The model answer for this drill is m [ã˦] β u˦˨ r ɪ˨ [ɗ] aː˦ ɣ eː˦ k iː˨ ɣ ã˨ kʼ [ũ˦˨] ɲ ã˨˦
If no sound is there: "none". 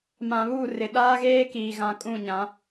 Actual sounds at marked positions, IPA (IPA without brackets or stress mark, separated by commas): ã˨, ɗ, ũ˦˨